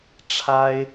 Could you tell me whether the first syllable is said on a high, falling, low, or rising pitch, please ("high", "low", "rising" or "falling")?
high